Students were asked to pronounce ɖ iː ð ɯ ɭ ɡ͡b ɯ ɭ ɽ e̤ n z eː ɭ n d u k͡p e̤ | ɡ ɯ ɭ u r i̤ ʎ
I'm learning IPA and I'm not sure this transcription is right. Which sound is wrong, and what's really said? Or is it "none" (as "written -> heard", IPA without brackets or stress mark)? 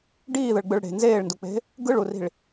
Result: ʎ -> ɭ